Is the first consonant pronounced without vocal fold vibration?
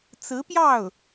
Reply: yes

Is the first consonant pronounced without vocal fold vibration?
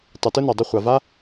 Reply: yes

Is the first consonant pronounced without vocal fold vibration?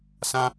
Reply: yes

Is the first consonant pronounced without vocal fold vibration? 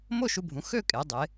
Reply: no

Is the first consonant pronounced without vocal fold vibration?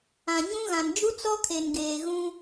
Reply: no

